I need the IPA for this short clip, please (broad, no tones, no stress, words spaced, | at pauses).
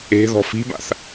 e̤ ðɔ̤fi̤ba̰θ